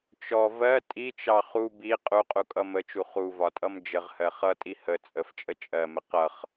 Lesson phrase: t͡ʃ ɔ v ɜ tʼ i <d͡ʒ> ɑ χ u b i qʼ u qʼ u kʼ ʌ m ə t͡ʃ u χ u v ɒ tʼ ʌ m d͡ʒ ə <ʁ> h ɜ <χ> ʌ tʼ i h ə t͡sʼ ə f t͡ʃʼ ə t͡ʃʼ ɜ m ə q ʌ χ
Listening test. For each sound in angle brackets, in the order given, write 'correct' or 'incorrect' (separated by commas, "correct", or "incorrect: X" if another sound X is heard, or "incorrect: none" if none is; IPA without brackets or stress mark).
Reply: incorrect: t͡ʃ, correct, correct